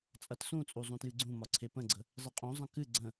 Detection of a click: present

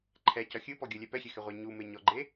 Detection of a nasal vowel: absent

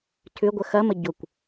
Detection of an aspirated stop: present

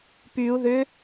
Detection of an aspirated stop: absent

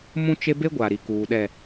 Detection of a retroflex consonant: absent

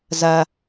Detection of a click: absent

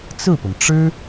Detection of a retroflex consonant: present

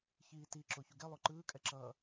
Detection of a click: present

